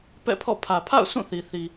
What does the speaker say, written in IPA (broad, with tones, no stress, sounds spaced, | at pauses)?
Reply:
p ɛ̰˦˨ pʰ ɔ̰˦˨ pʰ ä˨ pʰ a̰˦˨ ʊ̯ sʰ ũ˦˨ θ i˨ θ i˨